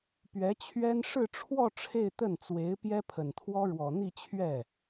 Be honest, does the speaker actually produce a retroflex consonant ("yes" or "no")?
yes